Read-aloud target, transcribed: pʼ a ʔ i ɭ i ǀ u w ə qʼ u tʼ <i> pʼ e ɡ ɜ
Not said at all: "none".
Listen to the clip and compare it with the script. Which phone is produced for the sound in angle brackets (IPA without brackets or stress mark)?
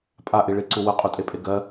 e